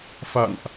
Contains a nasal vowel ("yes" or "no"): no